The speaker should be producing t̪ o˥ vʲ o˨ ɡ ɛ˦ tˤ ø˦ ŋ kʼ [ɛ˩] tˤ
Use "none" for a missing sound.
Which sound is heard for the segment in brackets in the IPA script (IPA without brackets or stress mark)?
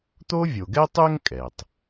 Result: ɛ˩